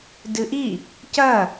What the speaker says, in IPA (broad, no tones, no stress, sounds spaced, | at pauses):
d ɨ ʔ i | c ɐ